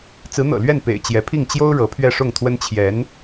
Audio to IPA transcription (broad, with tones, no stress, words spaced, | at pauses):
t͡sɹ̩˧˥n̪ɤ̰˨˩ lɥɛ˥˩n pḛ˨˩ɪ̯ t͡ɕjɛ˧˥pʰi˥˩ŋ t͡ɕjo˥ʊ̯ ɻɤ˧˥pʰɥɛ˥˧ʂʊ˥˩ŋt̪ʰwə˥n t͡ɕʰjɛ˧˥n